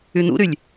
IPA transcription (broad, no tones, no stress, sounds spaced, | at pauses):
y n ṵ ɾ y lʲ